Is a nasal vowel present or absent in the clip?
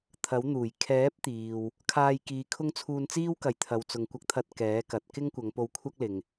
absent